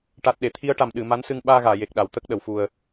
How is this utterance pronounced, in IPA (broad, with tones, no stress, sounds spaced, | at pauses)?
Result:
ʈ a˨˩ t̚ ɗ e˨˩˨ t̪ʰ i˧˥ ə̯ ʈ a˨˩ m ɗ ɨ˨˩˨ m a˧˥ n s ɨ˧ ŋ ɓ aː˧ ɣ aː˨˩˨ j e˨˩ k̚ ɗ a˨˩˨ w t̪ ə˦˥ k̚ ɗ ə˨˩˨ w f u˨˩ ə̯